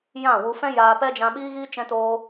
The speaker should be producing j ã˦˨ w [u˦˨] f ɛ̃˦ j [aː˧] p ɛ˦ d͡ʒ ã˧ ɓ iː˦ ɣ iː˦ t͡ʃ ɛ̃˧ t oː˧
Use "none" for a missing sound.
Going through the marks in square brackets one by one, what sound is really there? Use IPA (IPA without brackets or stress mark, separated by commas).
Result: u˧, aː˧